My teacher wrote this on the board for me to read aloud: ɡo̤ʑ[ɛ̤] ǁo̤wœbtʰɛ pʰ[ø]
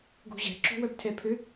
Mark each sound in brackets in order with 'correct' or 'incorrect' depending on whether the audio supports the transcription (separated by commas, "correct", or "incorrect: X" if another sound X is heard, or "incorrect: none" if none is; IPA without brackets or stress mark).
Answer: correct, correct